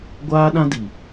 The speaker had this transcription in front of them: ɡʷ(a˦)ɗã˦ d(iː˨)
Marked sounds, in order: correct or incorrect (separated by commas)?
incorrect, incorrect